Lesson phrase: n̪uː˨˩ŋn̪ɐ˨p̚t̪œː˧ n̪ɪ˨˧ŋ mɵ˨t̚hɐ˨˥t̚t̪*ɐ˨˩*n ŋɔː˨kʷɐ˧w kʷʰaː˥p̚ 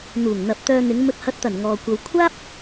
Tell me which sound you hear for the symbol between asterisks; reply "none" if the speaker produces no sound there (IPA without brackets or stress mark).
ɐ˨˩